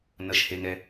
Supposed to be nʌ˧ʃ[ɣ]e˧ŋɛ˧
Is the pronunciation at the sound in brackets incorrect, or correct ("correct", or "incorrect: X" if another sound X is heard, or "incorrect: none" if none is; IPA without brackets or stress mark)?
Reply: incorrect: h